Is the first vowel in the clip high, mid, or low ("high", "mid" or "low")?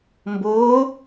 high